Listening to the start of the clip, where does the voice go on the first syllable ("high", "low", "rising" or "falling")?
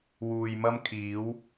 low